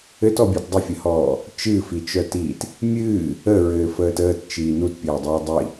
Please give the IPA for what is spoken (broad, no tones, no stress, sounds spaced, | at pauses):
ɘ t ɔ bʲ œ t dˤ ə fʲ ə h ɔː | t͡ʃ ɨ f i t͡ʃ œ t iː t | mʲ ɨː | ə ɹ ɘː f əː t əː t t͡ʃ iː n u t pʲ ɘː dˤ ɘː dˤ i